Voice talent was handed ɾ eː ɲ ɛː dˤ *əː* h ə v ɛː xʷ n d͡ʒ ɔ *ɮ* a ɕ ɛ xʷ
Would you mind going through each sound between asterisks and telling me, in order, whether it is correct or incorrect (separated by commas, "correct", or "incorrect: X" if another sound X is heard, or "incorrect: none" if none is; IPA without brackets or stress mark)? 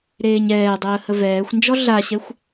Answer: correct, correct